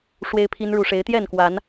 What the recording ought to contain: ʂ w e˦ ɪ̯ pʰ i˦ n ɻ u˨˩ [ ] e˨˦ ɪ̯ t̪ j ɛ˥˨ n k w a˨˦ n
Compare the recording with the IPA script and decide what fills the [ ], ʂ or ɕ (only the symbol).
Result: ʂ